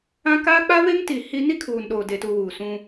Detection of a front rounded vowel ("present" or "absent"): absent